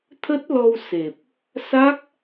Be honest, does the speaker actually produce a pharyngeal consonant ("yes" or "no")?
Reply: no